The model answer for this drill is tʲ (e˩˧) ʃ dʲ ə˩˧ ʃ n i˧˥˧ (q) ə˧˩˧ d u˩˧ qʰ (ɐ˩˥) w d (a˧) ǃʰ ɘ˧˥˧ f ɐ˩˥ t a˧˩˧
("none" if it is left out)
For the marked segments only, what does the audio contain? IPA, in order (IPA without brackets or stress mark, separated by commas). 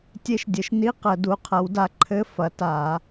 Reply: e˧, q, ɐ˩˥, a˧